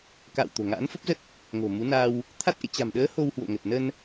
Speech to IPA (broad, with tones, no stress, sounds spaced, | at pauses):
k a̰ː˧˨ w t̪ o̤˨˩ ŋ a̰ː˧˥ n f ə˦˥ p̚ z ə˦˥ t̚ | ŋ o̤˨˩ m u˨˦ n a˧ w | t̪ʰ a˦˥ t̚ ʔ ḛ˧˨ t͡ɕ a̤˨˩ m ɗ əː˨˦ h o˧ w h w o̰˧˨ ŋ ə˨˩ t̚ n ə˧ n